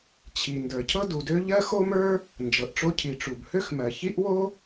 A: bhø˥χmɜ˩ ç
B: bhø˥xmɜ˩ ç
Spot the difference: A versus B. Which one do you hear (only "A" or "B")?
B